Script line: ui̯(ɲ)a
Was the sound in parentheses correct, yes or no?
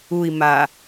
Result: no